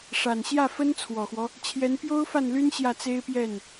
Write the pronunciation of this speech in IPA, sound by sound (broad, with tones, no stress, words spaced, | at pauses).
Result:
ʂa˨˩nɕjä˥˩fə˥n t͡sʰwɔ˨˩xwɔ˦ | t͡ɕʰjɛ˧˥n pjo˥ʊ̯fa˥˩nly˥n ɕjä˥˩t͡se˥ɪ̯pjɛ˥˩n